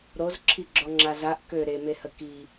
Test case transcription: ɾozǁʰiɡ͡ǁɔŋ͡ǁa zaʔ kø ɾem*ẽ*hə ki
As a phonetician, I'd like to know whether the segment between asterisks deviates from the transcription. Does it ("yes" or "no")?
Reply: yes